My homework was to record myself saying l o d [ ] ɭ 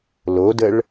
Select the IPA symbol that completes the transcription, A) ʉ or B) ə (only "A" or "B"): B